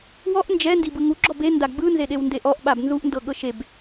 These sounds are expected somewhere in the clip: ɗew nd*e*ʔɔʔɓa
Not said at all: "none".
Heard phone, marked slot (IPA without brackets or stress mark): e